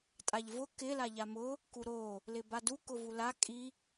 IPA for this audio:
tʼaʎvʊ kɪ laʎamʊ | kuɾo | lɪbadu kʊvula kʼi

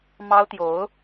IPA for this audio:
mɑ˥ʊ̯t̪jo˧˥ʊ̯

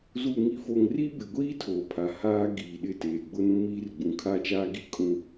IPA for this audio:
zuː˨ŋi˨fo˨ŋri˦ bɪ˨ɡʷiː˦ tʰoː˨pʰa˨haː˦ ɡiː˨ɗɪ˦˨ teː˨ɡ͡bʊ˦nũ˦miː˦r ɡ͡bũ˨kʰa˦t͡ʃaː˦ɡi˦ kʼũ˦

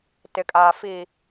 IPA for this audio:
tɪ˨kʼaː˨fi˨

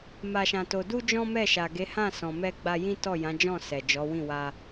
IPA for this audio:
ma˧ʃã˧to˧ du˦d͡ʒɔ̃˦ mɛ˦˨ʃa˨ɡe˨˦hã˦˨ sɔ̃˨mɛ˧ɡ͡ba˧ jĩ˦tɔ˦˨jã˨˦d͡ʒɔ̃˦˨ sɛ˨d͡ʒɔ˨˦wĩ˦˨ wa˧

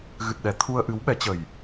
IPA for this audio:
ɣɨ˨˩t̚ ɗɛ˨˦ t̪ʰu˧ə̯ʔɨ˨˦wɓɛ˨˦t͡ɕə˨˩j

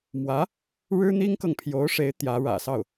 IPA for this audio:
mwä˧˥ | ɻɻ̩˥n̪i˥ŋkɤ˨ŋ pʰjo˧˥ʊ̯ʂe˧˥ɪ̯ t̪jä˧˥ɻä̰˨˩sɑ˥˩ʊ̯

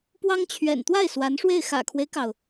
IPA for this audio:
pwɑ˥ŋt͡ɕʰɥɛ̰˨˩n t̪wa˥˩ɪ̯ swa˧˥nʂwe˥˩ɪ̯ xä̰˨˩kʰwe˦ɪ̯kɑ˩ʊ̯

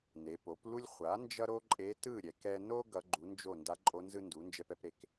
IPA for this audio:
ne˩˧po˩˥plu˥lʲ χʷa˩˥ nd͡ʒʌ˥ɾo˥ǃʼe˧˥ tɯ˥˨ɾʲɛ˩˧k ɛ˧no˥ ɡʌ˧˥ɡ͡ǃu˩˥nd͡ʒo˥˨ nda˧˥ǃʼo˧˥ nzɯ˥ndu˩˥ nd͡ʒɛ˧pɛ˧pɾe˩˧k

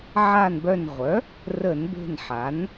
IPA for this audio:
ʕa˦˨nbœ˦˨n ʁʷœ˩˥ | rə˧˩˧nbe̤˦˨nħa˩˥n

